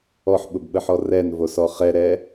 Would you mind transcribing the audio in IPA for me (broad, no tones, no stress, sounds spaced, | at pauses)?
ɔ ħ ɓ ʊ b ɓ ə ħ ɔ r ɛ n v o s ɔ χ ɛ ɾ ɛ